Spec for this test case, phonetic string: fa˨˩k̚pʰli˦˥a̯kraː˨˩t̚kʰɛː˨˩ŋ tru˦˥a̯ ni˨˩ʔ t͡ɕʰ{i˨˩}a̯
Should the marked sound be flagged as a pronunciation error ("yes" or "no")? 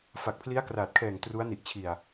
no